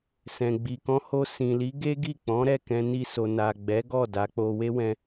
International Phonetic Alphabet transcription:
s ɛ̃˨ ɡ͡b i˨ k ɔ̃˧ h o˧ s ĩ˨ l i˨˦ ɡ e˦ ɡ i˦˨ k͡p ɔ̃˨˦ ɾ ɛ˦˨ k ɛ̃˧ n i˧ s o˨ n a˨ ɡ͡b ɛ˨˦ ɡ ɔ˦˨ d a˨˦ k͡p o˧ w e˦ w ɛ̃˧

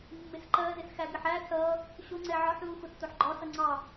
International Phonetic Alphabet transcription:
mː ɪ s ǃ ɜ z ɪ s x æ ɡ ɪ ħ æ s ʌ | ɕ ʊ ŋ͡ǀ ɛ ʕ ɒ ħ l u x ʊ tː ʊ ħ ɡ͡ǃ ɒ s ʌ ŋ͡ǀ ɑ

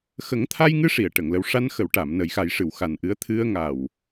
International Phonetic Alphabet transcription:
x ə˨˩˦ ŋ t̪ʰ a˧ j ŋ ɨ˧˥ ʂ i˨˩˨ ə̯ ʈ ə˨˩˨ ŋ l ə˧ w ʂ a˧ n x ə˨˩˨ w ʈ a˨˩˨ m n ə˨˩˦ j x a˨˩˦ j ʂ ɨ˨˩˨ w x a˨˩ n ʔ ɨ˧˥ ə̯ t̪ʰ ɨ˧ ə̯ ŋ a˨˩ w

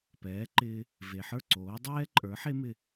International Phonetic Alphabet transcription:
p ɛː˩˥ ǃ ɪː˧ | v e˩ ħ ə˞˥˩ ǀ oː˩˥ dˤ ɛː˥ ǃʼ ə˞˩˥ ħ e˥ m ɪ˥˩

